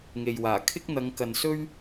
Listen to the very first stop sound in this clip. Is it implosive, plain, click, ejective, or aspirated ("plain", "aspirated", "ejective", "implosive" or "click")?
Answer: aspirated